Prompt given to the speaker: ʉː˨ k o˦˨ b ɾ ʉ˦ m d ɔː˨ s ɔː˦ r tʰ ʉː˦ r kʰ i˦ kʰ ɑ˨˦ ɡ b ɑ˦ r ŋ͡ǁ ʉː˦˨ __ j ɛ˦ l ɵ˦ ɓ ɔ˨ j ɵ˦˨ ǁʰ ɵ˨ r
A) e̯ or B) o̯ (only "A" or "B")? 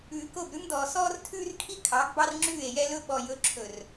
A